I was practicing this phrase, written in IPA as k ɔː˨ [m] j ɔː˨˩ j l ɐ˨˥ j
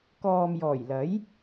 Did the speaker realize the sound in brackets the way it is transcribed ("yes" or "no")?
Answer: yes